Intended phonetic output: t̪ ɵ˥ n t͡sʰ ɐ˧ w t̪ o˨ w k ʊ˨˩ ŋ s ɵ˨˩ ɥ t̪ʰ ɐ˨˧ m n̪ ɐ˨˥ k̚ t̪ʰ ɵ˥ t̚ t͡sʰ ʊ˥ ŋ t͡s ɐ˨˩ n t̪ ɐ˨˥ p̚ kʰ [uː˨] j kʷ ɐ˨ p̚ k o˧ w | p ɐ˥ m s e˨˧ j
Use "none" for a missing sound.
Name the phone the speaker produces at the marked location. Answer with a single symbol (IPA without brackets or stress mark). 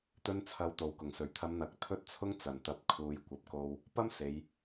uː˨